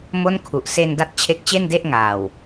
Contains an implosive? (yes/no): no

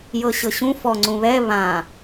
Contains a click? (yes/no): yes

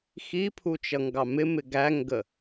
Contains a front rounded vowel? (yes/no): no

